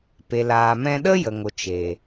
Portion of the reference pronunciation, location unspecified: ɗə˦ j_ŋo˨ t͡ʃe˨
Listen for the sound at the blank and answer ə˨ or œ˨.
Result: ə˨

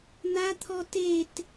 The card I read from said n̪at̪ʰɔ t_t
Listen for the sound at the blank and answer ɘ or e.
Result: e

